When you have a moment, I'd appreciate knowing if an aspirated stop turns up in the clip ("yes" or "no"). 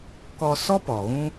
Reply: no